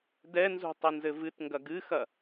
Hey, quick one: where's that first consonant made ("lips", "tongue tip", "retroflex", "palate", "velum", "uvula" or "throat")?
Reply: tongue tip